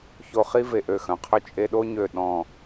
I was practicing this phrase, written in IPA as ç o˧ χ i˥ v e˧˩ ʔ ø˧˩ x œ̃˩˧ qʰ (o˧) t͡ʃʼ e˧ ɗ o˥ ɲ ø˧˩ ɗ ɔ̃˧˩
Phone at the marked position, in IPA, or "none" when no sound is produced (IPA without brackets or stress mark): ɵ˧